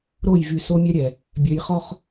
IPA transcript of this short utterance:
ɾ o˦˨ j v y˨ s o˦ mʲ ɛ˦ ɾʲ ɛ˨ | bʲ œ˨ j χ ɔ˦ χ

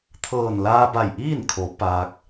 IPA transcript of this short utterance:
t̪ʰ ɤː˧˩ n l aː˧ b a˧˩ j ʔ iː˥˨ n kʰ o˩˧ p aː˧ k̚

